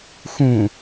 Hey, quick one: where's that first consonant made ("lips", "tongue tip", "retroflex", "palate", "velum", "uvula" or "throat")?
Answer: velum